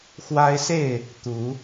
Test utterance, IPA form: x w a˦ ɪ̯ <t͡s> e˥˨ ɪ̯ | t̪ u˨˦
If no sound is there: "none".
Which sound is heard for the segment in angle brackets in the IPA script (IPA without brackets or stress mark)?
s